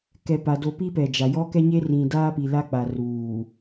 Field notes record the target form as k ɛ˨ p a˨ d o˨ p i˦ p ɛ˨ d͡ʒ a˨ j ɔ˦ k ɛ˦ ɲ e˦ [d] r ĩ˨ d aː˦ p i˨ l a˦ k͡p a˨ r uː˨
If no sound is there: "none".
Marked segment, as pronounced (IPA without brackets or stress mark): none